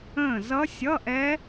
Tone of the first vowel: falling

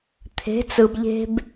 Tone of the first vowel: rising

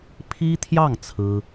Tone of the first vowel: high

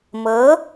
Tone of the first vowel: rising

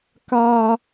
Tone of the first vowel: high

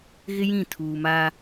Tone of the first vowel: high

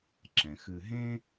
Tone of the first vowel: low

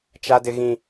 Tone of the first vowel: high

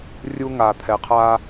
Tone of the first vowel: high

